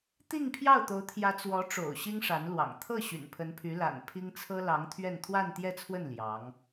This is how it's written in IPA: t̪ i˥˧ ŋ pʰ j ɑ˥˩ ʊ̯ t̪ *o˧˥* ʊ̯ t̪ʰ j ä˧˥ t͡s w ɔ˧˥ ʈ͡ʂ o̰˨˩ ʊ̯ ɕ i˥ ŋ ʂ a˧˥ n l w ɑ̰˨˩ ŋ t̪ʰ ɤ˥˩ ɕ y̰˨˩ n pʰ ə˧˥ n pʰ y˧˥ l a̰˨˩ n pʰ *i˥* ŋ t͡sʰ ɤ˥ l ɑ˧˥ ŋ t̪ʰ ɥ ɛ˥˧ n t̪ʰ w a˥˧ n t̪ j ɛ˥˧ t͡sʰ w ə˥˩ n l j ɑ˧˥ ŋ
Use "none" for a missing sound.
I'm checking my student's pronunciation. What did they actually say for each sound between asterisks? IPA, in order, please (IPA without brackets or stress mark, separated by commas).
o˧˥, i˥